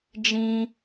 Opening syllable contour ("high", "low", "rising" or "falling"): high